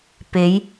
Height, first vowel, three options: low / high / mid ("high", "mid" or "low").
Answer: mid